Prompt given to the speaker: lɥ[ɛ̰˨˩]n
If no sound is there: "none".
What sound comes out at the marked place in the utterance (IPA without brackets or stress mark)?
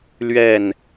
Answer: ɛ˥˨